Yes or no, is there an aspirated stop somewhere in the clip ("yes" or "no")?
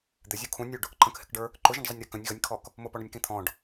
yes